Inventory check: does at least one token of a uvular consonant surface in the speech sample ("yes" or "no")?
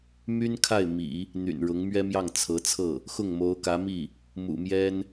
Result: no